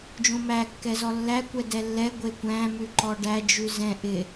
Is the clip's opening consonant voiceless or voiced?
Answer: voiced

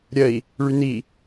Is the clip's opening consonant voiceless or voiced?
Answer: voiced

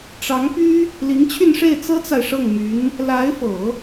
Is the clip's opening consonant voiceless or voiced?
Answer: voiceless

